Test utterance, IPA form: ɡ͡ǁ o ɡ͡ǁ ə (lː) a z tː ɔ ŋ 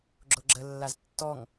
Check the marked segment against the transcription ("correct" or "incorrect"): correct